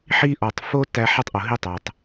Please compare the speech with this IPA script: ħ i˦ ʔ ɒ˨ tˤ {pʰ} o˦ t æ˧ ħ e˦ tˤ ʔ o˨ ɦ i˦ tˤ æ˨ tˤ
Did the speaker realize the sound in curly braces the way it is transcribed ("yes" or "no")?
no